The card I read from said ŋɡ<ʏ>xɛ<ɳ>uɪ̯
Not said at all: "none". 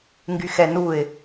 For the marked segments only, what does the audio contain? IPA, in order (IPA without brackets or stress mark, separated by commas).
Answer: y, n